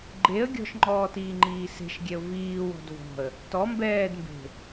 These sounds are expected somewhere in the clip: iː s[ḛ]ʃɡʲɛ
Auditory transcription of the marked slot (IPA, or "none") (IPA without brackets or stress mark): e̤